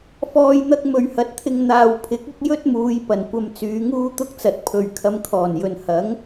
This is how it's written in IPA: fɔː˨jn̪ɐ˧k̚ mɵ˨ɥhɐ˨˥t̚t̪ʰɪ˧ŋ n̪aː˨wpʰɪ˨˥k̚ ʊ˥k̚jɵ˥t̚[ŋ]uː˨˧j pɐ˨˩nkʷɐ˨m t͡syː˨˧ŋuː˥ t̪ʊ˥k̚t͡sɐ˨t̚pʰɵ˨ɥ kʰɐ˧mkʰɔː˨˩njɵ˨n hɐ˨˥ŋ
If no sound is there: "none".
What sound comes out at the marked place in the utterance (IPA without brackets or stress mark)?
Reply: m